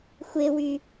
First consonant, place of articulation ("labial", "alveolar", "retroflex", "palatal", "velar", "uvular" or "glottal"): velar